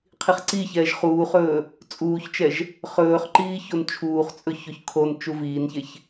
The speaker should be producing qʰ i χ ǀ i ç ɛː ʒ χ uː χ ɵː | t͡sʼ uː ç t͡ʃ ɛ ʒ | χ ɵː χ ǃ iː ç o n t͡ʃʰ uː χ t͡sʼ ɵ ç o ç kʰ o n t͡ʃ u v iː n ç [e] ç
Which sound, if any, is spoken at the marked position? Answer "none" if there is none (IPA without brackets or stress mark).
e